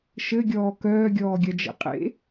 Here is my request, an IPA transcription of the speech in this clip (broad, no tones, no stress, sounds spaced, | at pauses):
ʃ ɘ ɡʲ ɔː k œː ɡʲ ɔː ɡʲ ɐ d͡ʒ ḛ qʼ ḛ